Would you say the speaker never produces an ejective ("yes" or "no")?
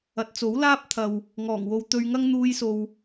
yes